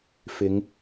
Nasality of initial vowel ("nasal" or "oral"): oral